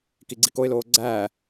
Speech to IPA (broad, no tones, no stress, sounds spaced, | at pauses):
k i ɡ͡ǀ i k o ɪ̯ l oː ɡ͡ǀ æː